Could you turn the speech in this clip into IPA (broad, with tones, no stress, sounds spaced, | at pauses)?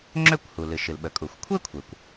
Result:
ŋ͡ǁ ø˥ kʷ h u˩ l ɨ˩ ʃ ɨ˩ l ɓ ə˩ kʼ u˩ xʷ kʷʰ e˥ kʷʰ e˩ kʷ